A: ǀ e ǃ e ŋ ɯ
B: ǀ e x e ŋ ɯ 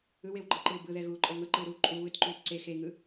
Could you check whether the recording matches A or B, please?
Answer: B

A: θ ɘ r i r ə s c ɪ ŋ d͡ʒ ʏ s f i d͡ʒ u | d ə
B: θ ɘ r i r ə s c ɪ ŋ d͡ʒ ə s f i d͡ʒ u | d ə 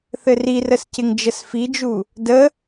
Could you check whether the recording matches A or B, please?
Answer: B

